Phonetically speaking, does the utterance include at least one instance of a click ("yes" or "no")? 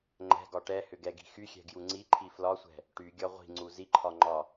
yes